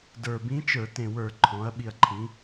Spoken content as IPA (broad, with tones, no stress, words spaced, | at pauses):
də˞˨˩bĩ˧˥ t͡ʃə˞˧˩˧tẽ˨˩wə˞˧˩˧ ǃʰɔ̃˩˧ɐ̯ ɓi˨˩ɐ̯ǃʰĩ˩˧